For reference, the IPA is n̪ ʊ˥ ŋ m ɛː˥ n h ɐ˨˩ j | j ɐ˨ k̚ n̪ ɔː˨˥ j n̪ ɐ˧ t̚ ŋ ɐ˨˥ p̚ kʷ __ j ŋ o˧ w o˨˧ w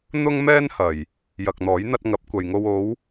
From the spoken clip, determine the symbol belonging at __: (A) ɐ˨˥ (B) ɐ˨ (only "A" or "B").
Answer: B